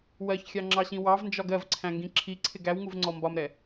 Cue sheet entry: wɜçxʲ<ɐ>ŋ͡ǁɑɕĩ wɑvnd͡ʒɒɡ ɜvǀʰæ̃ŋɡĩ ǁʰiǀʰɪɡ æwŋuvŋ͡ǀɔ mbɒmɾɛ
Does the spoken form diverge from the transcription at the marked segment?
yes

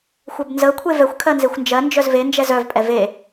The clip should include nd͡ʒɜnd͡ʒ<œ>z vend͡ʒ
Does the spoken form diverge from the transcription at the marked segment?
no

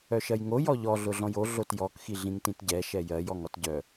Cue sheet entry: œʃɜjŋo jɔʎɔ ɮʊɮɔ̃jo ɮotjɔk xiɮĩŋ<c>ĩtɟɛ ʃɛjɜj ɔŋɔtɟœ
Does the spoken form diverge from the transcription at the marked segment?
yes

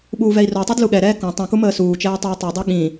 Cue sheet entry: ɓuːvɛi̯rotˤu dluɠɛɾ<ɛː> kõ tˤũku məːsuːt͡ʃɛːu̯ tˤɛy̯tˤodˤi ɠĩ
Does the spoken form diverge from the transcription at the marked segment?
no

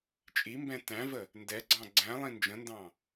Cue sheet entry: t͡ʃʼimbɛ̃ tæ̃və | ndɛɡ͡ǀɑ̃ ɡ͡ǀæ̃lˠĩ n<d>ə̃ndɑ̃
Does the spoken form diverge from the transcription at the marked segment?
yes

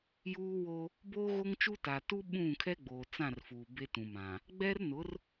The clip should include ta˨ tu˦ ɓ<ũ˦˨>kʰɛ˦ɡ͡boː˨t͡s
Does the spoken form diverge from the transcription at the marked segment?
no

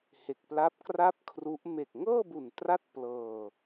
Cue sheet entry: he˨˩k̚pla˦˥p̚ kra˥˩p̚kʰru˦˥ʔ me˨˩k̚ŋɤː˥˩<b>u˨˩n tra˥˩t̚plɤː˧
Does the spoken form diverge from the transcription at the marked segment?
no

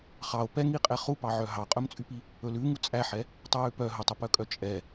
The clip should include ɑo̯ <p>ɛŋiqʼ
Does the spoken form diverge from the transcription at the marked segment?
no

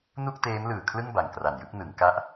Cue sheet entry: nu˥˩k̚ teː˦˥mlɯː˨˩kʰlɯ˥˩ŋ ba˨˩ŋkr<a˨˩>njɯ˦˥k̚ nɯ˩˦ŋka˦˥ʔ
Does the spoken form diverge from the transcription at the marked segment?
no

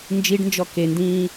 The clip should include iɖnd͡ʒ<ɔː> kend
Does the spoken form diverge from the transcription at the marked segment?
yes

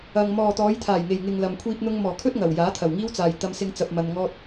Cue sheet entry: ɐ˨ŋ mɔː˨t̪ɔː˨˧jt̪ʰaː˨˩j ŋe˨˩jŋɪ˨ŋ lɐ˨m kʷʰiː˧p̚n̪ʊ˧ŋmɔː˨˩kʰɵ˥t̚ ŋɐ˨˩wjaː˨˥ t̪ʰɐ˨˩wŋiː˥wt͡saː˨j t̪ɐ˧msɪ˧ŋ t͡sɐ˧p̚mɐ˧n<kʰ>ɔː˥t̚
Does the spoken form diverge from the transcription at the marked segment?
yes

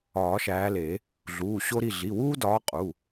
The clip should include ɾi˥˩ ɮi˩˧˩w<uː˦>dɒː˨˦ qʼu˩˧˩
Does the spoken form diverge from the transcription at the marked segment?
no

